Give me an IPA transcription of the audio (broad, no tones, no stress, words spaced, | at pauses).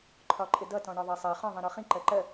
ǃʰɒǃʼɪdʌ tɔ̃ɳɒðˤɜsˤɜ χɔ̃ ðˤĩɾɔχĩ ǃɜǃɜ